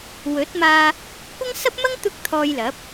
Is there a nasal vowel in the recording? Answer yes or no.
no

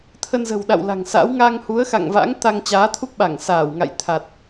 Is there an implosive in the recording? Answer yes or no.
yes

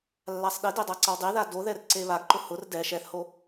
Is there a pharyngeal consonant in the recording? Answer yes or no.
no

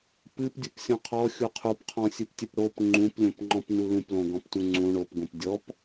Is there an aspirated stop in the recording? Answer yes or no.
yes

